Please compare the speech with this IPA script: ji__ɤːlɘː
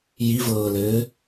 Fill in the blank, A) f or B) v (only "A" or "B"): B